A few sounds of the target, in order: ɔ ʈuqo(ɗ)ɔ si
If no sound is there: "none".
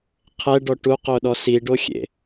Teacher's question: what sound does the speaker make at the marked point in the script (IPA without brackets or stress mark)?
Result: ɗ